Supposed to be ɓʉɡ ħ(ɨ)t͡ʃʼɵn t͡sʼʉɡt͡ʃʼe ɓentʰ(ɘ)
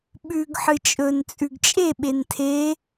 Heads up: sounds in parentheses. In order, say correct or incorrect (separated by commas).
correct, incorrect